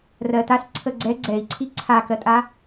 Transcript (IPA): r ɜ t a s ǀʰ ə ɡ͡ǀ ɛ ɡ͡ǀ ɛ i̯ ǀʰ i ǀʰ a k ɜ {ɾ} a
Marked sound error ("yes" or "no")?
yes